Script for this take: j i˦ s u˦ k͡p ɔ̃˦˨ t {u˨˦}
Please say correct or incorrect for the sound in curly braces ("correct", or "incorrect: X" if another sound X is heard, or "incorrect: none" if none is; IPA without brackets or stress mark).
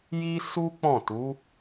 correct